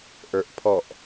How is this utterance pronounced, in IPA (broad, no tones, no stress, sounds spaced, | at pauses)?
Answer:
ʔ ə˞ ʔ pʰ ɔ ʔ